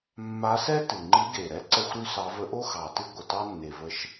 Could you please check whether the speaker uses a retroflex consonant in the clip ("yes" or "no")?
no